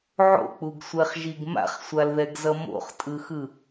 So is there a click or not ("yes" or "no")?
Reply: no